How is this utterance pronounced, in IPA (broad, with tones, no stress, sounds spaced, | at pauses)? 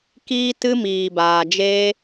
k iː˦ t ɨ˦ m iː˨ b aː˨ d͡ʒ eː˦